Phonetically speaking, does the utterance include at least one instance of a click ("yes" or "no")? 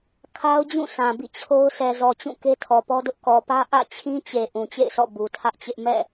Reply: no